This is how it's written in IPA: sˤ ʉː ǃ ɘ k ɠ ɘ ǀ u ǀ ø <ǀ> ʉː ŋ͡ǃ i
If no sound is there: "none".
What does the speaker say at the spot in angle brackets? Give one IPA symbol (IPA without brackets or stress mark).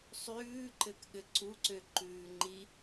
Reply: ǃ